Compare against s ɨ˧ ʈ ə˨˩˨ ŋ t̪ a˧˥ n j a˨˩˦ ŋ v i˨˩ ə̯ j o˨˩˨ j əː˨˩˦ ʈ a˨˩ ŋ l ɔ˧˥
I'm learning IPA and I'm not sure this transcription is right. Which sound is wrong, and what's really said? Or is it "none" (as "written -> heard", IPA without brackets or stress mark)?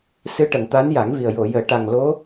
ɔ˧˥ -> o˧˥